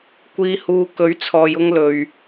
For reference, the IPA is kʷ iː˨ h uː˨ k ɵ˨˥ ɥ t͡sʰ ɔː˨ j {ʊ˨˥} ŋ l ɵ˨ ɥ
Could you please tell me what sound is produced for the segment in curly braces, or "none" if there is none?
ʊ˧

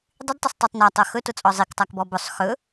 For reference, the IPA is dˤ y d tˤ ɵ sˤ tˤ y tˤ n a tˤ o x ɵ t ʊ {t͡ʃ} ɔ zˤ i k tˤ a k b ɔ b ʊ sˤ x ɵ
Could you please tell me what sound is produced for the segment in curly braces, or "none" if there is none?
t͡sʼ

